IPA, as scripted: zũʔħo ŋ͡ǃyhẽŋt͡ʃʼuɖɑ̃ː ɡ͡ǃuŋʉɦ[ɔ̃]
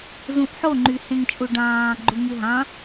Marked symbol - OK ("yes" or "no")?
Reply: no